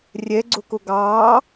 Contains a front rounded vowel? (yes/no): no